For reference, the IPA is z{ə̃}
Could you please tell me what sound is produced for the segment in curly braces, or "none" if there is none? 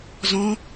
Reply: ɔ̃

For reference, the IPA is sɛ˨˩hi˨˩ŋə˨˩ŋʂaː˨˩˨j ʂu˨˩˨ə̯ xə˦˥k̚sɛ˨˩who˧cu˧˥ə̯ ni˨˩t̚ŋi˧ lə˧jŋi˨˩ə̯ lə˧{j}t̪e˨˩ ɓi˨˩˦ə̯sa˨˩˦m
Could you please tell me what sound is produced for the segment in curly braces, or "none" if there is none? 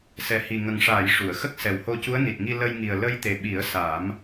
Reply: j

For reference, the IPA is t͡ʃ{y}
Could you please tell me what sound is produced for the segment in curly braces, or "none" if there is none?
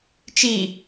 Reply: i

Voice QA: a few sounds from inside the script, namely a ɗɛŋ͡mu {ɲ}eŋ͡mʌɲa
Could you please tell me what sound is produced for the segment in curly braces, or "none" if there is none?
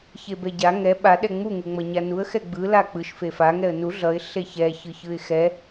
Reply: ŋ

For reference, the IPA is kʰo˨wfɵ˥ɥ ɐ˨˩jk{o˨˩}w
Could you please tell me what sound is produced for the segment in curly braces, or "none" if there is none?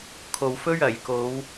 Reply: o˨˧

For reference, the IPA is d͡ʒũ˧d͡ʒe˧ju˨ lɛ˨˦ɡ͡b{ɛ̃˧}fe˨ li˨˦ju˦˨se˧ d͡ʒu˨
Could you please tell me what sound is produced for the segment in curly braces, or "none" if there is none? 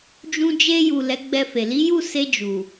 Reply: ɛ˧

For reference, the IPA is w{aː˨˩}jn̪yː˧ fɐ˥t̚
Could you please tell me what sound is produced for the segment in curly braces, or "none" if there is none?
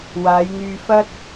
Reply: aː˨˧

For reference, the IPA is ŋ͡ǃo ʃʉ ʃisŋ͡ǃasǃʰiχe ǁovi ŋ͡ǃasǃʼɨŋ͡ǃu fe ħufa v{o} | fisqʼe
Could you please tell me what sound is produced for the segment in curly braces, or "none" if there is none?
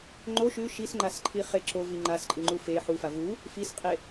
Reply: u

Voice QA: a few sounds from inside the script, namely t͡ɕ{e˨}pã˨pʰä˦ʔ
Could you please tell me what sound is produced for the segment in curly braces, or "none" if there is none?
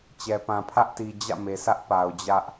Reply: ɛ˨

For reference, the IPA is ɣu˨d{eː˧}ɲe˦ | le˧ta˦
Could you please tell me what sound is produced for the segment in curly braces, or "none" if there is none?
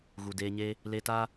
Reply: eː˧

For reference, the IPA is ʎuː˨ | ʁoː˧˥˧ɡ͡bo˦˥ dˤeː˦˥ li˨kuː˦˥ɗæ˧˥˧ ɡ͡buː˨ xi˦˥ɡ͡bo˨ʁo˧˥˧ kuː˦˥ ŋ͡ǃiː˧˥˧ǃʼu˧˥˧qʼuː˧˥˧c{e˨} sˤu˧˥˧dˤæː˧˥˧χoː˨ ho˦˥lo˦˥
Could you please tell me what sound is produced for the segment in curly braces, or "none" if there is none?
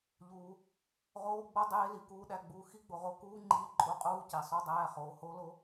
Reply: e˨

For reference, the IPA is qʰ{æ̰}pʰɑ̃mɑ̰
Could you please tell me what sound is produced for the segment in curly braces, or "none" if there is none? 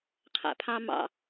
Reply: æ̰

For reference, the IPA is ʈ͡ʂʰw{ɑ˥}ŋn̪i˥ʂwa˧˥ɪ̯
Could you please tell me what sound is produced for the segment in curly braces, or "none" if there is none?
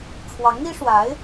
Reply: ɑ˧˥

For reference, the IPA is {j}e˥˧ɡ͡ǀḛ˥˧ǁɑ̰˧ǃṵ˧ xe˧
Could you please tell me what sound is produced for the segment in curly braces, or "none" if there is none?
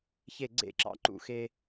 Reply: ç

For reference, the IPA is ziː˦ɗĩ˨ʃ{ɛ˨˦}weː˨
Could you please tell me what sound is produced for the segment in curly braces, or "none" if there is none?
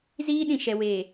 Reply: ɛ˨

